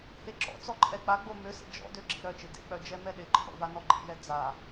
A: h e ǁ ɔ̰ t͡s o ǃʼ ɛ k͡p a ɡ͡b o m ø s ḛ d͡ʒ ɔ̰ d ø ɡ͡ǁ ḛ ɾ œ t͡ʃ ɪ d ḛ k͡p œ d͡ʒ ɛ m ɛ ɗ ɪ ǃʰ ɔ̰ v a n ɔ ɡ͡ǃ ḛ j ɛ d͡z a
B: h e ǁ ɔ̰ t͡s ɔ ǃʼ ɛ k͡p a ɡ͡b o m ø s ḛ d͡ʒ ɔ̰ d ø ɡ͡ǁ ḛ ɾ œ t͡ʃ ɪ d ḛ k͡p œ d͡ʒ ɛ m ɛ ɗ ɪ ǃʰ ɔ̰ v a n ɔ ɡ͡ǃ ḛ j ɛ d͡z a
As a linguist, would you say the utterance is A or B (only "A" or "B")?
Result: B